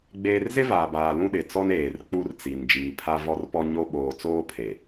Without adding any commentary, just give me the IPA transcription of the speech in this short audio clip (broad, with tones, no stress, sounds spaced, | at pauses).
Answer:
ɡ͡b eː˦ r z ɪ˦ v aː˨ b aː˨ l ũ˦ ɗ ɪ˨ t͡s ɔ˦ n eː˨ r k͡p u˦ r t͡s i˨ n d͡ʒ iː˨ pʰ a˦ v ɔ˦ r p ɔ˦ ɲ o˦ ɓ oː˨ t͡s oː˦ pʰ e˨